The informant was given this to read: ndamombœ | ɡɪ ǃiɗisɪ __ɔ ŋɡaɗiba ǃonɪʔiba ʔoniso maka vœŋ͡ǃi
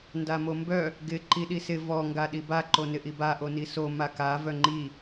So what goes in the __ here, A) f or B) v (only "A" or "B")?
B